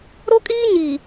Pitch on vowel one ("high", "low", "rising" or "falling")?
high